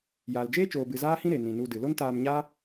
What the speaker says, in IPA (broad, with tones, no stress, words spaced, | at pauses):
jaː˨ld͡ʒeː˦t͡ʃoː˨bɨ˨ zaː˦hĩ˦ ɾe˨nĩ˨nu˧dɨ˨ lo˦ntaː˧mɲaː˦